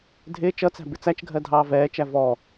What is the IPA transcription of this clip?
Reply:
dʱ ɪː t͡ʃ ʌ t͡s æ̤ b ɪ t͡s æ t͡ʃ ɡʱ ɜ dʱ ɑː v ɛː t͡ʃ æ v ɔ

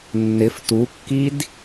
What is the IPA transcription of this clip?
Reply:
nː ɪ f t u kː i d

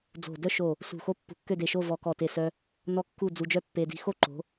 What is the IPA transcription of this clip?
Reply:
d͡z o̤˧˩ d œ˥ ʃ o˧˩ | s ṳ˧˩ x o˥ pː ṳ˧˩ kː ø˥˧ d e˧˩ ʃ o˥˧ v ɔ˧ k ɔ˧˩ t e˧˩ s œ˧ | n ɔ˥ kː u˥˧ d͡z u˧ d͡ʒ œ˥ pː e˧ d i̤˧ x o˥˧ ǃ o̤˩˧

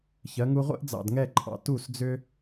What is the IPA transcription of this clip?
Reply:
ç ɜ˩˧ ŋ u˧ ʁʷ ḛ˥ ʔ d͡z ɑ̰˧˩ d ŋ ɛ˥˧ ǃʼ ɑ̰˧ t u˧˩ s d͡z ʏ˧

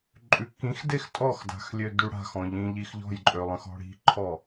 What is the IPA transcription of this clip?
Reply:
ǃʼ ʉ k ĩ x d e x tʼ ɔ x d a̤ x lʲ ø d y ɽ a̤ x ɔ̃ ʎ ĩ ʎ i x ʎ ɔ̤ j ǃʼ ø lˠ ə̃ x ɔ̤ ɽ i̤ ǃʰ ɔ

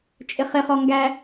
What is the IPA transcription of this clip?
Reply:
t͡ʃʼ ɪ χ ɪ χ ɔ ŋ ɡ æ

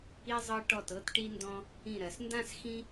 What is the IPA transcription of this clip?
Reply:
i˧ zˤ ɤ˧ ʈ ɔ˧˩ t ɤ˧ t ʈ i˧ n d ɔ̃˧ | ĩ˧˩ ɾ ɜ˩˧ s n d ã˥˧ s x ĩ˥

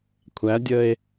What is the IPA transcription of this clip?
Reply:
kʷʰ æ dʲ ə e̯

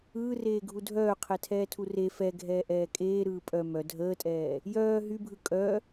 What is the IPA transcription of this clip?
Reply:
ɯː r eː ɡʱ u dʱ œː qʰ ɛ tʰ ɛː tʰ u r e f ɛ ɡʱ ɛː ʔ ɛː kʼ eː ɾ ɯː pʼ œ m œ dʱ əː tʼ ɛː | j œː ɦ y bʱ ɯ kʼ œ

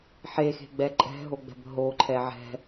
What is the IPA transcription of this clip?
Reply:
ħ e x e̤ ɡ͡b ɛ ǃʼ ɛ̤ ɦ o ɡ͡b ɛ̤ b ɦ o ǃʰ ɛ ʕ ɛ̤

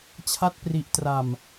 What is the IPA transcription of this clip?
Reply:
t͡ɕʰ a˦˥ t̚ p r i˨˩ ʔ t r a˨˩ m

